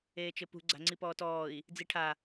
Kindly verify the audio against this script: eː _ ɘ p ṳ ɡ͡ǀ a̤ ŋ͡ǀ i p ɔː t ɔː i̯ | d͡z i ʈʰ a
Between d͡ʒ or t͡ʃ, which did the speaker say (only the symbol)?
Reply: t͡ʃ